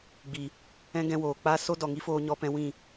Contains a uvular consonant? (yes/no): no